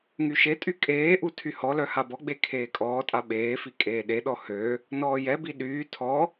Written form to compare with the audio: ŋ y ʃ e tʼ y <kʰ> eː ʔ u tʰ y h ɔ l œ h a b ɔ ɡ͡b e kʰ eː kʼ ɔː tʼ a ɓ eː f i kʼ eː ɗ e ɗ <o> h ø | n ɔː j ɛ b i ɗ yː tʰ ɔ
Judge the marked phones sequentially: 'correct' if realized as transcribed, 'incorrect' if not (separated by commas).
incorrect, incorrect